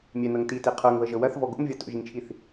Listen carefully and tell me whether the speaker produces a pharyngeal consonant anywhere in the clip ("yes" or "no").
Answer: no